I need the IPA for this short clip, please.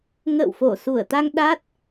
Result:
ŋ ə̰ː˧˨ w f o˧˩ s u˧˩ ə̯ t̪ a˧ ŋ ɗ a˦˥ t̚

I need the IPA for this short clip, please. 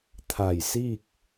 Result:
t̪ʰ a˧˩ j s i˥˨ k̚

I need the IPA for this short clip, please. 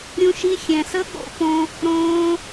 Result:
ɾʲ ũ˧ ʃ i˧ xʲ ɛ̃˨ s ə˦ ɠ o̰˦ p õ˦ | ɾ õː˧

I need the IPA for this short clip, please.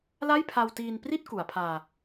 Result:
l a˥˩ j pʰ a˧ w t iː˧ n p r i˥˩ t̚ k u˩˦ a̯ pʰ aː˧

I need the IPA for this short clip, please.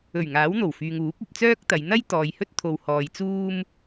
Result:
ɵ˨˩ ɥ ŋ aː˨˥ w n̪ o˨˩ w f yː˨ ŋ uː˨˥ p̚ ɐ˧ p̚ t͡s œː˥ k̚ t̪ ɐ˨˧ j n̪ ɐ˥ j t̪ ɔː˨ j h ɵ˥ t̚ t̪ʰ o˨ w h ɔː˨ j t͡s uː˥ m

